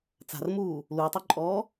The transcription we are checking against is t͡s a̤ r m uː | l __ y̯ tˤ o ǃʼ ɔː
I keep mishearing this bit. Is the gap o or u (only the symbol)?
u